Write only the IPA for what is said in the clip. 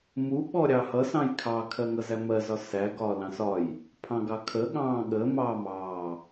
m u ɓ ɔ ɾʲ ɑ h ʌ s ɑ̃ j kʰ ɑ kʰ ɜ ŋ ʌ z æ m ɜ z ɒ s æ ɡ ɒː l ɑ̃ s ɒ j | pʰ ɑ̃ ɡ ɑ kʰ ə ɠ ɑ̃ː ɠ ə m ɑː m ɑː

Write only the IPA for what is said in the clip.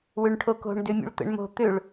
w ʏ ɳ ʈʰ o k o̤ ɳ d ʏ mʲ ṵ ɭ t̪ ə̰ ɳ m o̤ t̪ ʏ ɭ

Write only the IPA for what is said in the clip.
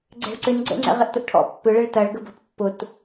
ɡ͡ǀ ɛ̤ ɭ ǀ ʏ n ɡ͡ǀ ə̰ ŋ͡ǀ ɛ̰ ʁ ɪ ʔ t ʊ ʔ ʈʰ ɔ̰ pː ʏ ɭ ɛ ɭ t ɐ ɭ ɡ ə b ɔ̤ t pː ʊ t

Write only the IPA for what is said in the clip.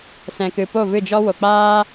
s ɛ̃˨ k ɨ˨ p o˦˨ v ɨ˦˨ d͡ʒ ɔ˦ w o˨ k͡p aː˦

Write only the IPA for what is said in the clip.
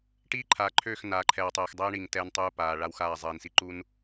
ʈ iː˦ ǃʰ a˨ ǃʰ øː˦˨ x n aː˨ ǃʰ ɛː˨ w tˤ ɛː˨ x dˤ ɛ˦ ɳ i˨ ŋ t ɛː˦ n tˤ uː˦ p aː˨ ɭ a˦ w x aː˦˨ zˤ iː˨ n s i˦ ǃ u˦ n

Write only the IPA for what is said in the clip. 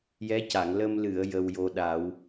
j ɛ˧˥ c a˨˩˨ ŋ l ə˧ m l ɨ˨˩˨ ə̯ j ə˧ w j o˧ ɗ a˨˩˦ w

